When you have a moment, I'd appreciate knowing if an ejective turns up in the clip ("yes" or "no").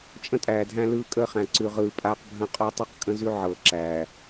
yes